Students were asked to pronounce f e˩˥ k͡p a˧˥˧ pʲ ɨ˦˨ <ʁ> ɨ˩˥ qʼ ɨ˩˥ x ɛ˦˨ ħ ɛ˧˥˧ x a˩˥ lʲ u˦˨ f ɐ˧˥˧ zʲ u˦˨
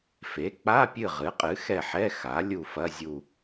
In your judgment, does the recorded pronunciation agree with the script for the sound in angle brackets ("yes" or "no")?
yes